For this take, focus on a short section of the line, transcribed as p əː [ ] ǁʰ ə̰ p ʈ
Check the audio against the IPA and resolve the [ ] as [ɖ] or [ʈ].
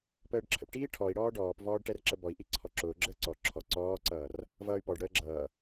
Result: ɖ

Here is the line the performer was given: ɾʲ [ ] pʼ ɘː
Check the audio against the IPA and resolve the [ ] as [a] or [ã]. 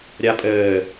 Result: a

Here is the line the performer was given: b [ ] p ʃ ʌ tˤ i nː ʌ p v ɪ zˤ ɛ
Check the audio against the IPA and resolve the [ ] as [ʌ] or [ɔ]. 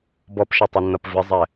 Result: ɔ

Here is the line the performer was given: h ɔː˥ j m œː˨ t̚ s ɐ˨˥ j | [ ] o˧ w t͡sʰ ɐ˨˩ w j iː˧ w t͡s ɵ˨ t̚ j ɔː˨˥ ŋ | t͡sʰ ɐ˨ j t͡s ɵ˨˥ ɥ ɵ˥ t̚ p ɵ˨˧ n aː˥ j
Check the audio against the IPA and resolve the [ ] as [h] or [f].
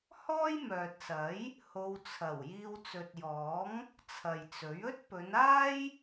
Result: h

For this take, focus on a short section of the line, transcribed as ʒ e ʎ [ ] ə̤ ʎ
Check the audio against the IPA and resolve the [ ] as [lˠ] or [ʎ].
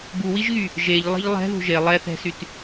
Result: lˠ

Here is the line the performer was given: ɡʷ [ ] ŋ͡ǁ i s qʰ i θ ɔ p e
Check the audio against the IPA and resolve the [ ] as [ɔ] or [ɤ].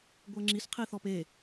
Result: ɤ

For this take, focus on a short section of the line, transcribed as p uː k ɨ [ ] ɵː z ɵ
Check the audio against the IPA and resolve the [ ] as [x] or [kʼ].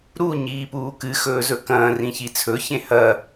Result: x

